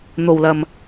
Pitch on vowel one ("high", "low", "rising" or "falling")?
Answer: low